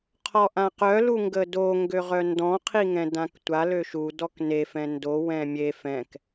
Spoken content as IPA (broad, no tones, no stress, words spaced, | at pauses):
qʰɔʔãqœ luŋɡədo ŋɡøʁœndɔ̃ qʰiŋɛ̃dãktʷa løʃu dɔkne fɛ̃ndo wɛ̃mʲe fɛ̃k